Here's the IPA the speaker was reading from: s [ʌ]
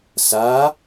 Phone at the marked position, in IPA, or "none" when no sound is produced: a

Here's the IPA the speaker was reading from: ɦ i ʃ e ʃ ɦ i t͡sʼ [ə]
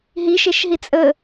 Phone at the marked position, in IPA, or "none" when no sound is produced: ə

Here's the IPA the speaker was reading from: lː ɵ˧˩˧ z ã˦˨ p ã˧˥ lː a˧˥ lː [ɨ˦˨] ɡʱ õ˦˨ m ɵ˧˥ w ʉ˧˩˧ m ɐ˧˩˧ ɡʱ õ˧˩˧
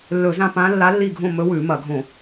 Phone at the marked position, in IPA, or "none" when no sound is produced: i˦˨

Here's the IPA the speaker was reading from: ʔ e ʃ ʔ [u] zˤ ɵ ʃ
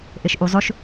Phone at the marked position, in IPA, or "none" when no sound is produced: u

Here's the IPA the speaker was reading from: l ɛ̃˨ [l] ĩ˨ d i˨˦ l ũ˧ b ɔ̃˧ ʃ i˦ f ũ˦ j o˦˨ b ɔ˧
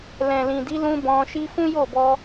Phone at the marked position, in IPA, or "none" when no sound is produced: l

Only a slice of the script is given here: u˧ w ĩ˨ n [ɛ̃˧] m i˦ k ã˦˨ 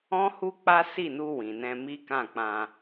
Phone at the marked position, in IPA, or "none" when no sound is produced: ɛ̃˧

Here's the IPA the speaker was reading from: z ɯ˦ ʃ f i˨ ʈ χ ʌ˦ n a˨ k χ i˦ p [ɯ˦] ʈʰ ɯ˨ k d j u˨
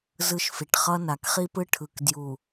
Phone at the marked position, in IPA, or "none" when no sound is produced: ɯ˦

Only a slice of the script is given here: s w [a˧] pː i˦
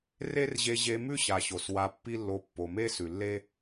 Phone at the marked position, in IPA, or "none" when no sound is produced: a˧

